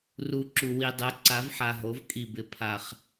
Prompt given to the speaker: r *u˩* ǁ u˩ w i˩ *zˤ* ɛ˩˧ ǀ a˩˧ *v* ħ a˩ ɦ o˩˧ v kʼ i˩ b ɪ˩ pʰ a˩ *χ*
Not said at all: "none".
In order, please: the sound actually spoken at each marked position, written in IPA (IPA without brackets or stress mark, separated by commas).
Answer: u˩, dˤ, v, χ